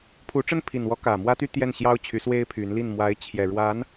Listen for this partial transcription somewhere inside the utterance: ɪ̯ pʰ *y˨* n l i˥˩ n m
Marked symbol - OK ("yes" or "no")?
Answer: no